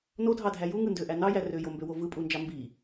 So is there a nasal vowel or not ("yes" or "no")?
no